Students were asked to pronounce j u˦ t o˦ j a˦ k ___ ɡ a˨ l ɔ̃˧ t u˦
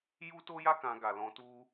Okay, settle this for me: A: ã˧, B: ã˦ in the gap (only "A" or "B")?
A